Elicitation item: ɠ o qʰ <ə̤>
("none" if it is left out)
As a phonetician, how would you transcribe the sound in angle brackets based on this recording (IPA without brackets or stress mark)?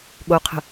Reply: ə̤